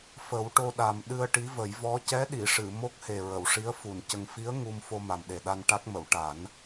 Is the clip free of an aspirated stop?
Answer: yes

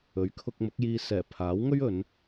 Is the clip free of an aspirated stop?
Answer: no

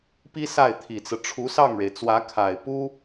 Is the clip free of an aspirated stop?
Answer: no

